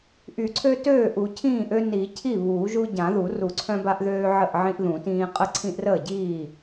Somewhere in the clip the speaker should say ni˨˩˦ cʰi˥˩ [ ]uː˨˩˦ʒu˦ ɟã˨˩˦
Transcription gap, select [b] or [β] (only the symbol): β